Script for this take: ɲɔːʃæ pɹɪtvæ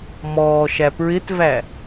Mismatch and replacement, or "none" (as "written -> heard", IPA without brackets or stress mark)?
ɲ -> m